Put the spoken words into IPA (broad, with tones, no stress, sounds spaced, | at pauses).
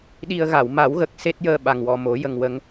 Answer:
ɗ i˧ ə̯ ɣ a˨˩˨ w m a˨˩˦ w ɣ ə˨˩ k̚ s e˦˥ t̚ j əː˧ ɓ a˨˩ ŋ w ɔ˨˩ m o˨˩˦ j ə˧ ŋ w ə˧˥ ŋ